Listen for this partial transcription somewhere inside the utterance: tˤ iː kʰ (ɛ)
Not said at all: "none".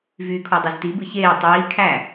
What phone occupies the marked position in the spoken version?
æ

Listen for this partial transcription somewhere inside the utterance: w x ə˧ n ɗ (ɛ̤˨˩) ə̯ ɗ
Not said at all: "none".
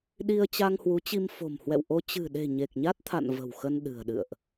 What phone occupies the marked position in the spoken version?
ɨ̤˨˩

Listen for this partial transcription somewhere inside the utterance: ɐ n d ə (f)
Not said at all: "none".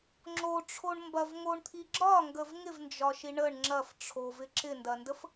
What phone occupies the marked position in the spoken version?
f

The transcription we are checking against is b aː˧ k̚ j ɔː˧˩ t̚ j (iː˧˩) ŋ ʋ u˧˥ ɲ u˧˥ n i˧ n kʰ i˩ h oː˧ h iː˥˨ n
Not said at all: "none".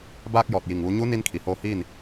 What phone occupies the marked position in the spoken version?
i˧˩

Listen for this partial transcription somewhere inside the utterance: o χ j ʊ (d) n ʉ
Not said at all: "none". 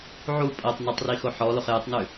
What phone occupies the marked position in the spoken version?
tˤ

